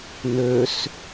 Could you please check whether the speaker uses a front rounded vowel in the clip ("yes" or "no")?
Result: yes